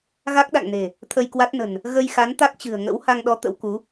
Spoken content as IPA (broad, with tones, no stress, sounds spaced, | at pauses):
ɣ a˦˥ k̚ ɗ a̰˧˨ ŋ n e̤˨˩ | t̪ʰ ə˧ j k w a˦˥ t̚ n ə̤˨˩ n | ɣ ə˧ j x a˨˦ n t̪ a˦˥ k̚ t͡ɕ ɨ̤˨˩ ə̯ ŋ ə̰˧˥ w h a˧ ŋ ɗ ɔ˨˦ t̪ ə̰˧˥ w k u˨˦